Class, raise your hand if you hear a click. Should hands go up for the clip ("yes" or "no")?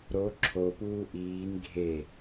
yes